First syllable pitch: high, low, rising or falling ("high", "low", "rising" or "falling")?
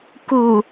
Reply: low